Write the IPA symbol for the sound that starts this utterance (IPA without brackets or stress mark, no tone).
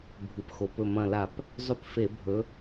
bʱ